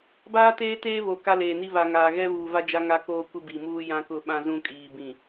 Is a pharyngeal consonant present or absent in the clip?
absent